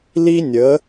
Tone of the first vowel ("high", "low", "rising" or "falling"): high